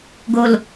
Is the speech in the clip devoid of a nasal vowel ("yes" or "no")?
yes